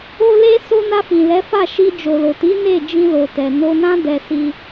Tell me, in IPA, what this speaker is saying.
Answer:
o˧ le˧ so˧ na˧fĩ˨ lɛ˨˦fa˦˨ʃi˧ d͡ʒo˨lo˨ti˨˦ ne˦˨d͡ʒĩ˧lo˨tɛ˨ no˧nã˦ dɛ˧si˧

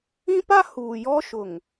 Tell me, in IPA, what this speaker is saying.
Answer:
ĩ˦pa˦ huː˨jɔ˦ʃʊ˨ŋ

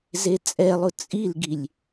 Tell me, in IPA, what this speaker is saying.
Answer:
zet͡sʼɛlˠʊ t͡sʼilɡilʲ

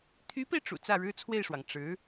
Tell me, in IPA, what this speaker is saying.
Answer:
t̪ʰy˧˥pe˧ɪ̯ʈ͡ʂṵ˨˩ t͡sä˥˩ɻɻ̩˥t͡sʰwe˥˩ɪ̯ʂwɑ˩ŋ ʈ͡ʂɻ̩˧˥

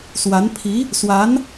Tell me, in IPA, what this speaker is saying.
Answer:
swa˧˥n pʰi˧˥ | swa˧˥n

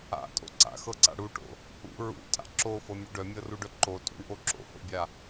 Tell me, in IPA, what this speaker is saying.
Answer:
a̰tʼo̰ ǀa̰xɤǀa̰ ɽuʈo̰ | ṵ ɹṵtʼa̰ ǁofɤmʲœ ɖœmʲɤruɖœ ǃotʼṵɳʔo ǁo̰ho̰bʲa

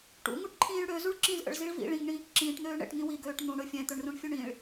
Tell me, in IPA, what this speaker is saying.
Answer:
ʈṵ ŋuʈǃʰĩːɭɽø zuɭǁĩzʔə̰ɭ ziɭvḭ ɭĩŋɳĩːk ǁĩːʈn̪øː ɳɛ̰ʈŋĩ wiɡøːʈ n̪ũɽɵ fʲɛ̃t̪ɵɳrũɳ fʲɵɳĩɭ

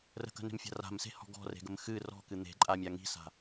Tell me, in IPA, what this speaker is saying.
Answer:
rə̤kə̤ne̤mfʲa̤ ra̤mse̤hɔ̤ ɡɔ̤re̤ɡəm xɨ rɔ̤kɨ n̪e̤ǃʼamʲa ŋi̤sa̤

